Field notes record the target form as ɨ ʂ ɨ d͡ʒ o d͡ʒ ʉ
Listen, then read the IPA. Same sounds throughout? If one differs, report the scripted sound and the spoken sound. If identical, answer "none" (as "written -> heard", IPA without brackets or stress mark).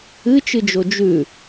ʂ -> t͡ʃ